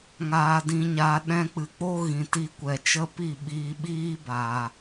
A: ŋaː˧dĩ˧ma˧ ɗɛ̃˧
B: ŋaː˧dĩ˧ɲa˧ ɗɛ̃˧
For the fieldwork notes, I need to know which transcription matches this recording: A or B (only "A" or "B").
B